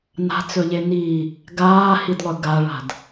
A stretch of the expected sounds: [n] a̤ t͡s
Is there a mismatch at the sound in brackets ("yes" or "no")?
no